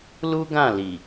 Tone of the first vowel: high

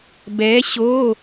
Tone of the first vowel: rising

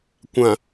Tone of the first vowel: low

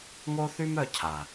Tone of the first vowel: high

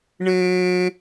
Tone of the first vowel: high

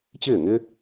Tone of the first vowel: falling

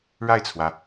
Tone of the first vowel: falling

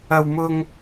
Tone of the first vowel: high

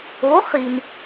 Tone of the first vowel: rising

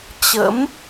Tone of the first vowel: rising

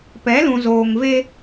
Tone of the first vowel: rising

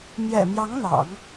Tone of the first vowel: low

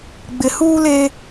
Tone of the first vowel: low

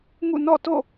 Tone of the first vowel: falling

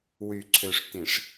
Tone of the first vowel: low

